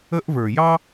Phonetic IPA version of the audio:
ə˦ ʔ v ə˞˨ j ɑ˥

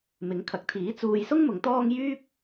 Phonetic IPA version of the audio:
m ɪ˨˧ ŋ kʰ ɐ˨˥ k̚ t̪ʰ iː˨˥ t͡s uː˧ j s ʊ˥ ŋ m ʊ˨˧ ŋ t̪ ɔː˥ ŋ j yː˥ p̚

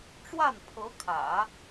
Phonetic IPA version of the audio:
ʈ͡ʂ w a˥˩ n pʰ ɤ˧˥ kʰ ä̰˨˩˦

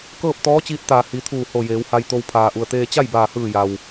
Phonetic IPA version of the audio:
k ɤː˥˨ p̚ t̪ ɔː˧˥ t͡ɕ iː˧ t̚ t̪ aː˩ h i˩˧ t̪ʰ uː˧˩ h o˧˩ j eː˩˧ w h a˧ j t̪ o˧ w pʰ aː˩ ʔ u˩ ə̯ t̪ eː˧ t͡ɕ a˥˨ j b aː˧˩ h ɯː˧˩ j a˩ w

